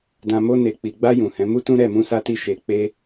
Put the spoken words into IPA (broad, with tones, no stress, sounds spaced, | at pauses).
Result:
d ã˨ m o˧ n e˨ k͡p i˨ ɡ͡b a˧ j ũ˨ h ɛ̃˨˦ m u˦ t ũ˦ ɾ ɛ˦˨ m ũ˧ s a˧ t i˧ ʃ e˨ k͡p e˧